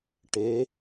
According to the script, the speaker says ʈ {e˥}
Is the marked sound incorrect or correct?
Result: incorrect